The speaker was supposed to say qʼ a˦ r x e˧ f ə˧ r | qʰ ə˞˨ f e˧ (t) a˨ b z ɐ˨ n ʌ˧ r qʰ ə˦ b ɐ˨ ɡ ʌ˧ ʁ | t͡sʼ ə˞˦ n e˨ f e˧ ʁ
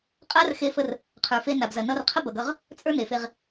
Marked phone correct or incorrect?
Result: incorrect